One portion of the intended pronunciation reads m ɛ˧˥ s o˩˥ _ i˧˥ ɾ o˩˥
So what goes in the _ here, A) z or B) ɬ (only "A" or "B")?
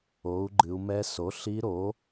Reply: B